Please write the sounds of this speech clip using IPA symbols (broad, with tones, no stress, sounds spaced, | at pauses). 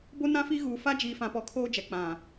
b o˦ n ã˦ f i˦ ɣ uː˨ f a˦ d͡ʒ iː˨ f ã˨ p ɔ˨ kʰ oː˦ d͡ʒ ɛ˨ k͡p ã˨